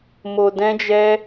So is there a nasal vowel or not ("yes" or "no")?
yes